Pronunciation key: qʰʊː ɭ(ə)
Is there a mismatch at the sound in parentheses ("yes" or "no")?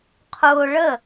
no